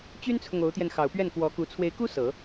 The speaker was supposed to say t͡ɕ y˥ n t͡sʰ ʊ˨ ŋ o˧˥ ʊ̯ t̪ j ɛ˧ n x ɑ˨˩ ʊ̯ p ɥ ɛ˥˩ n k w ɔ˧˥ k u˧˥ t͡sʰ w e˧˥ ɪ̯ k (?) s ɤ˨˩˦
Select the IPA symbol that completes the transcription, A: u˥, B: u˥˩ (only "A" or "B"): A